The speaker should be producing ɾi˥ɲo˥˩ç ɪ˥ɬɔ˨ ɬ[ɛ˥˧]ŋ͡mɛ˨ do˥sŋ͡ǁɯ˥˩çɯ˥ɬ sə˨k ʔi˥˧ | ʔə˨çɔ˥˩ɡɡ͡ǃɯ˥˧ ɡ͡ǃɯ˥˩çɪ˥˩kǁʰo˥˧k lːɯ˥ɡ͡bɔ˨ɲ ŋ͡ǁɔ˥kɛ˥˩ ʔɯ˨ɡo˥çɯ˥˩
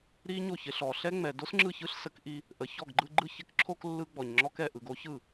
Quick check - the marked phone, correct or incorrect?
incorrect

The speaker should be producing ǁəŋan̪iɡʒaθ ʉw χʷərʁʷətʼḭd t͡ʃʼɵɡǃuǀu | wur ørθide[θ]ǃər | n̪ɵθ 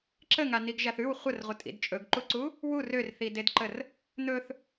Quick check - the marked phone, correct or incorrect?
incorrect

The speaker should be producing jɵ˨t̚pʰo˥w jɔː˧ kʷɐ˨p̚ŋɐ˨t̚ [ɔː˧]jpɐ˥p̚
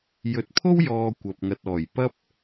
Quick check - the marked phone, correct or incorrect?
incorrect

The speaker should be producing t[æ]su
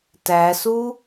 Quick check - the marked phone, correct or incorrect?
correct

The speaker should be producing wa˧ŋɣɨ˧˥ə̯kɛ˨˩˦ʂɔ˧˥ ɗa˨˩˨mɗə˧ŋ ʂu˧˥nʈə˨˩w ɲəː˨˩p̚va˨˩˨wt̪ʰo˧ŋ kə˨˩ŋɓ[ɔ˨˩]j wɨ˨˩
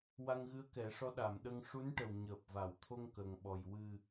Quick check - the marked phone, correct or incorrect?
correct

